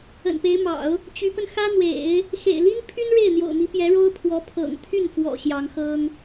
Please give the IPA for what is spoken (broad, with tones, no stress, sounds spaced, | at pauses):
ə̰˨˩ n p e˧˥ ɪ̯ m ɑ̰˨˩˦ ʊ̯ | t͡ɕ y˧˥ p ə˧ n x ä˥ n̪ w ḛ˨˩˦ ɪ̯ | x ḛ˨˩ ɪ̯ l i˥ n pʰ y˥ n ɻ e˥˩ ɪ̯ n̪ j o̰˨˩ ʊ̯ m i˧˥ p j ɛ˧˥ ɻ o˥ ʊ̯ pʰ w ɔ˧˥ pʰ ɤ̰˨˩ ŋ t̪ʰ y˥˩ n f w ɔ̰˨˩ ɕ j ɑ˧˥ ŋ x ɤ˥ ŋ